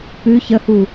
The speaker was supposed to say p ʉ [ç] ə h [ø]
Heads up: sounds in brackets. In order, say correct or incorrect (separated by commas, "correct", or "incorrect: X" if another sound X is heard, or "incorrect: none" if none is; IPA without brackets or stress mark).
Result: correct, incorrect: u